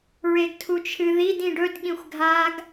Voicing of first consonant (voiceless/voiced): voiced